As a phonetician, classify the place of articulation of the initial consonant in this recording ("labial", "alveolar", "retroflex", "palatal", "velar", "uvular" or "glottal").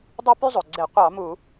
alveolar